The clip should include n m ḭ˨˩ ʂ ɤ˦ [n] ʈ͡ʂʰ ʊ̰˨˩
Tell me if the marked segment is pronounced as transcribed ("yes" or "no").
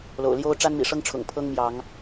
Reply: no